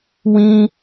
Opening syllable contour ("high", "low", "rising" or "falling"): high